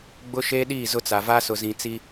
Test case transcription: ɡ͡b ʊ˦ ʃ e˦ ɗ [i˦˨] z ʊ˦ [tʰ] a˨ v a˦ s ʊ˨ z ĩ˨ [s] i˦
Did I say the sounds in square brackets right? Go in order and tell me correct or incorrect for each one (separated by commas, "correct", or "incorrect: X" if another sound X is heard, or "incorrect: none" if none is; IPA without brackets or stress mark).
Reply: correct, incorrect: t͡s, incorrect: t͡s